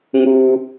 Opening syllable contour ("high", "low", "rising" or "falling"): high